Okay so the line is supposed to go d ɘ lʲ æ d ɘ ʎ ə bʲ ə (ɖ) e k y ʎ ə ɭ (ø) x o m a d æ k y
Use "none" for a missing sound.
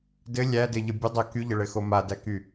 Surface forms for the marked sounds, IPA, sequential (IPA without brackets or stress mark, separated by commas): dˤ, ɘ